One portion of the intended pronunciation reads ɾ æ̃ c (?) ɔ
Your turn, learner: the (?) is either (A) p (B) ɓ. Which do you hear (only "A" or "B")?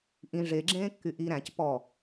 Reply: A